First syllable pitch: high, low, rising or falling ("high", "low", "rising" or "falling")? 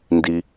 low